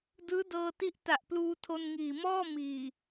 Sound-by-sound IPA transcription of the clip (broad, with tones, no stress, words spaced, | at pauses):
dɯː˦˥dɤː˧ti˦˥ʔ ta˨˩ʔpluː˧ tʰo˧nŋiː˨˩mɔː˥˩ miː˨˩